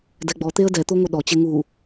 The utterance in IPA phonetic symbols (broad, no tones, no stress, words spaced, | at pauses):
dɛɡ͡bɔt̪eə̯ dɛt̪o ŋʷɘɗɔt͡ɕe ŋu